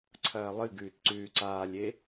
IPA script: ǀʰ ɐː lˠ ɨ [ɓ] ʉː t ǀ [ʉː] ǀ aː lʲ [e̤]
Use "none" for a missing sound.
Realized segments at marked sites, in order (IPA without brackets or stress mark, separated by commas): ɡ, ʉː, e